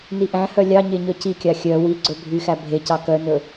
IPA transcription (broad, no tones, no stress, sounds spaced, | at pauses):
n i ʔ æ̃ h œ lʲ ɑ ɲ e ɲ œ c i kʲ ɑ xʲ œ w i ɡ͡ǀ ɵ bʱ y x æ bʱ e c ɑ k œ n ɵ